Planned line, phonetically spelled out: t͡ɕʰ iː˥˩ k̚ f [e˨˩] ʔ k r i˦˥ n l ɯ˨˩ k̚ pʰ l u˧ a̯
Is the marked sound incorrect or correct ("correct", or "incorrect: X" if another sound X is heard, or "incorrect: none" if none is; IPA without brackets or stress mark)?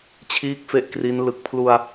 incorrect: e˥˩